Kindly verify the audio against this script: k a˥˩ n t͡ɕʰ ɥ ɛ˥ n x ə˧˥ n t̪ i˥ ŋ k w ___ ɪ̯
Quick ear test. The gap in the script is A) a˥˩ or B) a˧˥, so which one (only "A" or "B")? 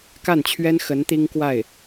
A